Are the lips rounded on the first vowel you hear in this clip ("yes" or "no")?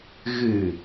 no